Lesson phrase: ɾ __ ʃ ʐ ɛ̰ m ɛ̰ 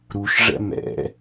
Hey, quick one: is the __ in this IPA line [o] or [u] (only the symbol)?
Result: u